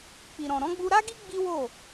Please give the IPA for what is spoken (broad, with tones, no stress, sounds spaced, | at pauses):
k͡p i˨ ɾ ɔ̃˨ ɾ ɔ̃˨˦ ɡ͡b u˧ ɾ a˦ ɡ i˦ ɡ͡b i˦ w o˦˨